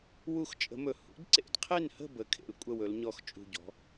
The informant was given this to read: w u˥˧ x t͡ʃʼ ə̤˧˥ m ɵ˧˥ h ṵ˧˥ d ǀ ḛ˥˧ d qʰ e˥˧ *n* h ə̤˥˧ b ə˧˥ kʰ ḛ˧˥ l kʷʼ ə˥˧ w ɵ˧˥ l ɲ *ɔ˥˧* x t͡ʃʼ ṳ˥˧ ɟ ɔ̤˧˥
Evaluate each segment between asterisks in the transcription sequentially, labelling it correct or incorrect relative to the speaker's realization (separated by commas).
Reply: correct, correct